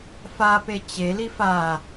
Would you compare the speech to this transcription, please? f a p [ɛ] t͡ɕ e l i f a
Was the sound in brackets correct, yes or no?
no